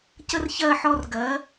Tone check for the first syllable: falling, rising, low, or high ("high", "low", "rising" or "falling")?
high